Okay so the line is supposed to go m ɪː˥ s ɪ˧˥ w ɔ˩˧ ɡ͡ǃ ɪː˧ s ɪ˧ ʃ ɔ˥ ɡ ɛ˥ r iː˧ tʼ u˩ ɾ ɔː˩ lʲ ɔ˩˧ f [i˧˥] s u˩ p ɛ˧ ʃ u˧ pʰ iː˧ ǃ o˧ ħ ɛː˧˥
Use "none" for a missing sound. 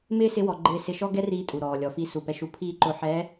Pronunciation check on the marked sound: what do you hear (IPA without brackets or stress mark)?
i˧˥